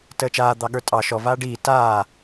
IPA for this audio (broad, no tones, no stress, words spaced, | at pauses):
təːt͡ʃaː d̪ɑɠə˞tʼɑ ʃɔ vaːɖiː taː